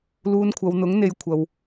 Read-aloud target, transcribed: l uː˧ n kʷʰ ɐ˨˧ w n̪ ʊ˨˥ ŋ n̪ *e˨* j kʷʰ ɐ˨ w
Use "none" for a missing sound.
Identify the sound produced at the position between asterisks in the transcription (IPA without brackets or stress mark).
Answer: e˨